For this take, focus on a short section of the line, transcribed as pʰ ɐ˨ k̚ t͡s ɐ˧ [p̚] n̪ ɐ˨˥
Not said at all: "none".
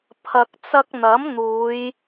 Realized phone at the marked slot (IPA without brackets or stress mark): k̚